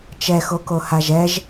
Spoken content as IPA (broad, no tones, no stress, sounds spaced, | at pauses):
t͡ʃ ɛ x o k o h a ʒ ɛ ʒ